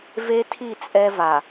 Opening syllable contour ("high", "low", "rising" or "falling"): high